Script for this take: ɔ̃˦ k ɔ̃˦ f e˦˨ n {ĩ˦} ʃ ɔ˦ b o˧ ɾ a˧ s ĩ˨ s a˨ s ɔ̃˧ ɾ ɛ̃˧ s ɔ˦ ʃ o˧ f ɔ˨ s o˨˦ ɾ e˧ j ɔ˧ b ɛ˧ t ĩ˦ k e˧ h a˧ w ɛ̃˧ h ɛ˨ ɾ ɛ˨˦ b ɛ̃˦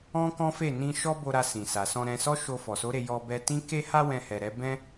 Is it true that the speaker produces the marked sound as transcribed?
no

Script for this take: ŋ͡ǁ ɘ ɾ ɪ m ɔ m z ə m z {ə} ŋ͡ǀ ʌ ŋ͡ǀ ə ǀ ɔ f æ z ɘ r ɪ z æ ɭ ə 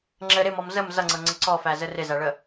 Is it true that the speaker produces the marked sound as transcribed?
no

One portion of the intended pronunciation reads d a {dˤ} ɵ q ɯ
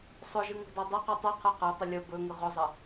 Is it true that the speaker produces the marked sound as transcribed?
yes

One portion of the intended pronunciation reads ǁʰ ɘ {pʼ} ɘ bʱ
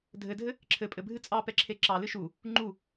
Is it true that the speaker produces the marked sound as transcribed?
yes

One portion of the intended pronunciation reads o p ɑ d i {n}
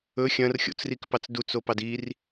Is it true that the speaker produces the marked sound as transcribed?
no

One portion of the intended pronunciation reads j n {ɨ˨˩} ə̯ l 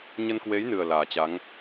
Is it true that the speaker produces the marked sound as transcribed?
yes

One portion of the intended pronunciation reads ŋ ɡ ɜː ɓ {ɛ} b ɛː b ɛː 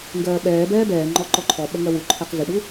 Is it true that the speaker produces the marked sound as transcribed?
no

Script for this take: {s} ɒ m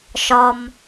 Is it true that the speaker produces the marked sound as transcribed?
no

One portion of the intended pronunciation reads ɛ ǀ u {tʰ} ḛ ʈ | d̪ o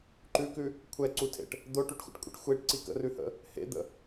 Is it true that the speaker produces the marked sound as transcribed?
yes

